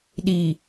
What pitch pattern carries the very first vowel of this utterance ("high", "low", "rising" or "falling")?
low